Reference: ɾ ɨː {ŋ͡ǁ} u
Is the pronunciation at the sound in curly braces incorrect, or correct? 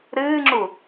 correct